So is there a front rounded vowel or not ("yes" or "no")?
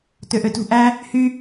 yes